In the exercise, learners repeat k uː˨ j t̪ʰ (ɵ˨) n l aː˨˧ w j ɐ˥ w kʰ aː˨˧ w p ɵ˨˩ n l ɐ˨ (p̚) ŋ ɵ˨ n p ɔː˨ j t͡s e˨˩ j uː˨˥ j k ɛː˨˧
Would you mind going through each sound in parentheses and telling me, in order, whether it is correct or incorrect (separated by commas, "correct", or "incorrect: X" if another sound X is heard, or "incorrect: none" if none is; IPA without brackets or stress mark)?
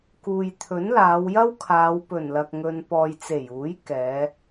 incorrect: ɵ˨˥, incorrect: k̚